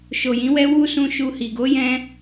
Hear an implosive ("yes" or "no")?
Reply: no